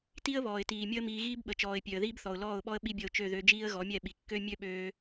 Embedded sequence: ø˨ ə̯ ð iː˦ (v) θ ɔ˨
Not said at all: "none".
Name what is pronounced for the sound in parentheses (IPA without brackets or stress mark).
b